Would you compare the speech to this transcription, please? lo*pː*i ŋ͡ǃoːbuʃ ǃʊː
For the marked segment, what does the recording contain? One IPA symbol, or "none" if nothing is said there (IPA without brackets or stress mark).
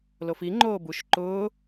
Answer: f